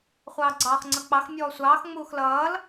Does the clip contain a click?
yes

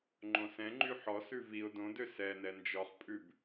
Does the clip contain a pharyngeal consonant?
yes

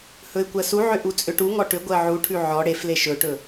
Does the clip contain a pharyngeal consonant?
yes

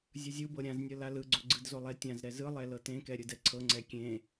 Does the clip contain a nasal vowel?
yes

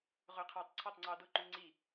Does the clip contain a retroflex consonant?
no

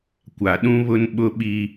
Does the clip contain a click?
no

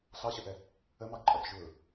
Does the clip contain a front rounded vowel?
no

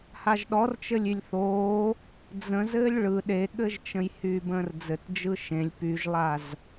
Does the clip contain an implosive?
yes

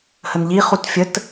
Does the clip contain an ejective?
no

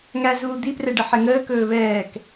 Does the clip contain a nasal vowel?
no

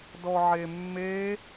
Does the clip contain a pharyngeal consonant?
yes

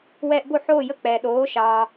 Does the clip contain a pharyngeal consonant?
yes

